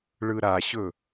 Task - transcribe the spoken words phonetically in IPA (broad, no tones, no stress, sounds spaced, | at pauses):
ɭ ɯ ɾ a ɕ ɵ